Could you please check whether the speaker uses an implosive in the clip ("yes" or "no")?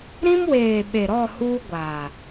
yes